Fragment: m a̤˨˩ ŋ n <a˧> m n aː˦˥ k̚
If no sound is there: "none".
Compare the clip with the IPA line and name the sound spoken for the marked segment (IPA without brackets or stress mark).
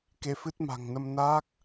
ə˧